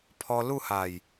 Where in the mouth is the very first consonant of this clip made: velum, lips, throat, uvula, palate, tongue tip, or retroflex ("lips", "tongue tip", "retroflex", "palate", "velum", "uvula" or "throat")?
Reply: lips